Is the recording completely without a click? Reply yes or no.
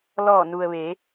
yes